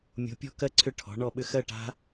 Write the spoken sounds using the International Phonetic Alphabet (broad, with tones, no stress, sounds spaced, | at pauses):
mʲ o̤˨˥ pʲ ɔ̤˥˧ k ɜ˥˧ ǀʰ ʏ˦˥ ʈʰ ɔ̤˨˥ ɳ ɔ˥˧ ɓ ʏ˥˧ x ɜ˥˧ ʈ a̤˦˥